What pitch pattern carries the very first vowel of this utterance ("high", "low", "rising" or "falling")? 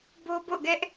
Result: high